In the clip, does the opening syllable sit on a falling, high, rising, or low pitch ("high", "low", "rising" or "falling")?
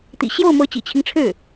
low